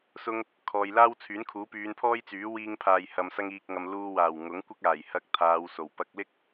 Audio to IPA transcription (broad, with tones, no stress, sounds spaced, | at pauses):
s ʊ˧ ŋ | kʰ ɔː˨ j l aː˥ w t͡sʰ yː˨˥ n kʰ uː˨˥ p yː˨˧ n pʰ ɔː˥ j t͡s yː˨˥ w iː˧ ŋ pʰ aː˨ j h ɐ˨ m s ɐ˧ ŋ iː˨ k̚ ŋ ɐ˨ m l uː˧ w aː˨˩ w ŋ ʊ˨˥ ŋ kʷ ɪ˥ k̚ aː˨˩ j h ɐ˧ k̚ t̪ʰ aː˨˧ w s o˨˩ w p ɐ˧ k̚ l ɪ˥ k̚